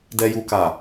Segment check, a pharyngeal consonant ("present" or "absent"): absent